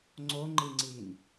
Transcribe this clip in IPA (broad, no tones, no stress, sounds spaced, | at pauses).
ŋ͡ǀ o ŋ͡ǃ i ŋ͡ǀ i n